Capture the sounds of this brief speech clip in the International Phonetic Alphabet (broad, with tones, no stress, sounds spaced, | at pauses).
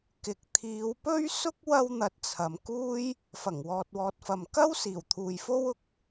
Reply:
k ɪ˨ k̚ t̪ʰ iː˨˧ w p ɵ˥ ɥ s ʊ˥ k̚ w ɐ˥ w n̪ ɐ˧ t̚ t͡sʰ ɐ˨˧ m k uː˧ j | f ɐ˨˩ ŋ w ɔː˨ t̚ w ɔː˨ t̚ f ɐ˨ m k ɐ˥ w s iː˨˩ w t̪ʰ uː˨ j f o˥ w ʊ˧ k̚